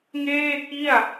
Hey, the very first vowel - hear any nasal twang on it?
no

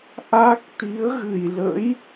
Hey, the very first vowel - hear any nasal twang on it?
no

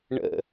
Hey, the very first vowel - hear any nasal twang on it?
no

